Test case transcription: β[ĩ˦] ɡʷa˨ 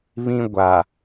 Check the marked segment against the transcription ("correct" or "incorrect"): correct